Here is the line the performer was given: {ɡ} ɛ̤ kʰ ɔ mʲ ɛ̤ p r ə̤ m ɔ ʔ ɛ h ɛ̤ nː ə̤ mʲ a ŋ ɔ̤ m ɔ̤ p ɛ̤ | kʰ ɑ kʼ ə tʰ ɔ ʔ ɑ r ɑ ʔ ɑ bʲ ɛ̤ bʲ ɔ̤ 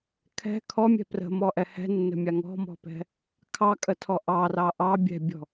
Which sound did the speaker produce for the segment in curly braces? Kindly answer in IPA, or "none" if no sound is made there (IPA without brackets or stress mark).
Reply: kʰ